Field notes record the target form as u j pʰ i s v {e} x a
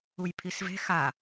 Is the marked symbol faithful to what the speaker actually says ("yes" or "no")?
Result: no